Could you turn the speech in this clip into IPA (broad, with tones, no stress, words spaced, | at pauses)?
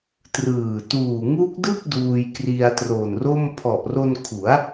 trɯː˨˩ tuː˨˩ŋu˦˥k̚dɯ˥˩k̚ duː˧jkri˧a̯tro˨˩nro˥˩m pʰɔ˨˩ʔro˧nkʰu˩˦a̯